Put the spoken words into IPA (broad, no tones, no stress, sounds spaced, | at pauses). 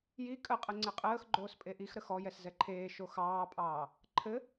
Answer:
j i kʼ ə qʼ ə ŋ͡ǀ ɘ qʼ əː x ɡ͡ǃ oː s pʼ e ʔ i x ɾ ə x ɔ j ɛ s z ɛ ǃʰ eː ʃ o x ɑː pʼ ɑː | ǃʰ ɘ